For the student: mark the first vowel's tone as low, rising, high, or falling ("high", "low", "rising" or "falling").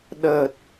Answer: low